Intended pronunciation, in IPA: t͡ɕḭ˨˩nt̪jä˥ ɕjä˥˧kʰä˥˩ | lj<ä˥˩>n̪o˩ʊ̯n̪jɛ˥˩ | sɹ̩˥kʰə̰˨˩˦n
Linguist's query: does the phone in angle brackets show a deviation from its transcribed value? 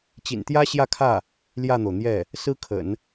no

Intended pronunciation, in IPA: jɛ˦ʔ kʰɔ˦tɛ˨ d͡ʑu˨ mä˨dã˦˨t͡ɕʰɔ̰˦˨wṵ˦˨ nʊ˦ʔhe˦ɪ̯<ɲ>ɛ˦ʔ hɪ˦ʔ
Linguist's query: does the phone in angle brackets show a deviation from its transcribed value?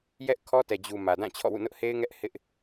yes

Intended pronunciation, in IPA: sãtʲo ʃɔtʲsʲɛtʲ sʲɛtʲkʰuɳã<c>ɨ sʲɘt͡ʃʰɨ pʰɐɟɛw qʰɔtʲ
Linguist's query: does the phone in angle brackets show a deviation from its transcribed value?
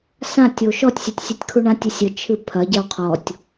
yes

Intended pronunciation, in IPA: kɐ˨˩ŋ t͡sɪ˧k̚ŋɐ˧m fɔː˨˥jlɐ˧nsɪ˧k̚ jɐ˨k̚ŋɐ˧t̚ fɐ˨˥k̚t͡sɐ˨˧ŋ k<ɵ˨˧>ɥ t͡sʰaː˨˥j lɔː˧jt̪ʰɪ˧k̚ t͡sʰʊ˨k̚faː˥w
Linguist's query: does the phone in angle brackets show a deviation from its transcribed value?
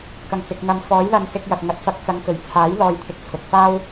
yes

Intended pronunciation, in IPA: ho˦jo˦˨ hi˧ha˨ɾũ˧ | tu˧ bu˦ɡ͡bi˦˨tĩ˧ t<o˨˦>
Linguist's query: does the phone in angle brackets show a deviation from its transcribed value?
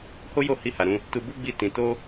yes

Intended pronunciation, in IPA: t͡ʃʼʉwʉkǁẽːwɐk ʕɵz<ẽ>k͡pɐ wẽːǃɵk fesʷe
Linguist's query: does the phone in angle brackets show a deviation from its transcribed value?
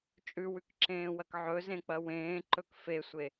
no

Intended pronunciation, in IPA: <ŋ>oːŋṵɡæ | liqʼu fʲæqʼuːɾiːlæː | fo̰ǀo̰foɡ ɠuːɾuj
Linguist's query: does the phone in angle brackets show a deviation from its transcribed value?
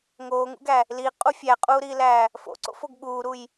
no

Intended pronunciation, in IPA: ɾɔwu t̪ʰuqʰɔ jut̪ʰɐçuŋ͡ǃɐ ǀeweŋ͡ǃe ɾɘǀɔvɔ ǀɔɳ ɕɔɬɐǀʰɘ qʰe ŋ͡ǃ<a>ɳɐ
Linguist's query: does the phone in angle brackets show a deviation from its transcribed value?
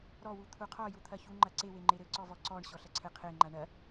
no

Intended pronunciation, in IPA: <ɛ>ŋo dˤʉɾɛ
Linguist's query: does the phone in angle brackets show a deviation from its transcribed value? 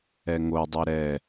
no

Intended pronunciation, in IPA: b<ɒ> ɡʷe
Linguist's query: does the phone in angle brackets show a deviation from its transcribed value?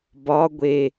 no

